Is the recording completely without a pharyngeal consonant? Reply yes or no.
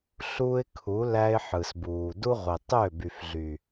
no